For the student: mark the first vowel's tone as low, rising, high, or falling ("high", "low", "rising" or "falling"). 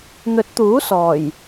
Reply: rising